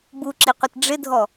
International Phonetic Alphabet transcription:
b u ǁ i qʷ ɪ t ɖ͡ʐ ɪ dʱ ɔ

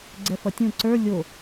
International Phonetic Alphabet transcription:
ɡ͡ǀ ɛ f ʌ tʲ ũ ǀ ə˞ lʲ o

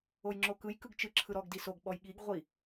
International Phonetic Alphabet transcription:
o j ŋ͡ǁ o k ɯ j k ɯ ɡ t͡ʃ ɯ ǁʰ ɯ ɾ ɔ ɡ d i s o ɡ ɓ ɔ j ɠ i ɡ ʁʷ i

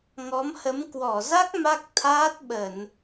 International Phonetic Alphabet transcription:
ŋ ɔ˨˦ m h ə˨˦ m k w ɔ˧˩ z a˦˥ k̚ m a˦˥ k̚ t̪ʰ aː˦˥ t̚ ɓ ə˧˩˨ n

